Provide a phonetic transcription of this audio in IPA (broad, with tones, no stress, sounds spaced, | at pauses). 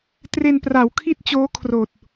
t r e˧ n p r a˩˦ w kʰ i˥˩ t̚ t͡ɕ oː˦˥ kʰ r oː˨˩ t̚